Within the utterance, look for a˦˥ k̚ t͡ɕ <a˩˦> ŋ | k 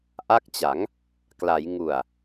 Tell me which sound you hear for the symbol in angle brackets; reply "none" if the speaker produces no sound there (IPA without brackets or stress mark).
a˩˦